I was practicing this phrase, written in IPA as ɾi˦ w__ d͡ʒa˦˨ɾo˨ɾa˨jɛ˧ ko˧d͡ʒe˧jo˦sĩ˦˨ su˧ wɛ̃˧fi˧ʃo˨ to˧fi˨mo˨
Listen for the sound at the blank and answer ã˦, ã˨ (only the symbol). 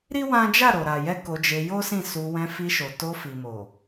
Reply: ã˦